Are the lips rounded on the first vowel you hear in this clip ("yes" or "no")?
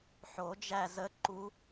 yes